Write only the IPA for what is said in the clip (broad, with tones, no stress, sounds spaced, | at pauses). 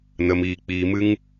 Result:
n ə˨ m iː˨ k͡p iː˨ m ɨ˧ ŋ